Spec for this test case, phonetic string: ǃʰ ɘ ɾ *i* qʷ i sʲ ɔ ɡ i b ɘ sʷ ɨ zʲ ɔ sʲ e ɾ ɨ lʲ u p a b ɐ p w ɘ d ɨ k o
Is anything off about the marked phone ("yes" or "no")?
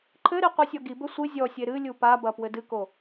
no